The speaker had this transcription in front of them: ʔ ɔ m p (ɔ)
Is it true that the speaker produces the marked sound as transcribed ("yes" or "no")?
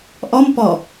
yes